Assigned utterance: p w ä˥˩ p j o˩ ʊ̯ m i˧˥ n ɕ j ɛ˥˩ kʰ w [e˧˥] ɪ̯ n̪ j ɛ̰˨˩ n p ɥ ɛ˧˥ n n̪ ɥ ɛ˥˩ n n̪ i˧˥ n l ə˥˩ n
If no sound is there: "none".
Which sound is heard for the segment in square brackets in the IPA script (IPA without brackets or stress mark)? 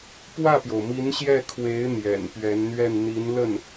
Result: e˧˥